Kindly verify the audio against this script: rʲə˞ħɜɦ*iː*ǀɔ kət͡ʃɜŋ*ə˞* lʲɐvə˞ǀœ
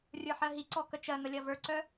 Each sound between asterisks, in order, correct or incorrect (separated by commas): incorrect, incorrect